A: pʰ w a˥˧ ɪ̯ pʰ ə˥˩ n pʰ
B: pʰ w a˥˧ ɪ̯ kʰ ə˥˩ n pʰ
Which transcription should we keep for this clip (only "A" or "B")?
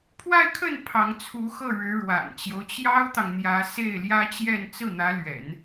B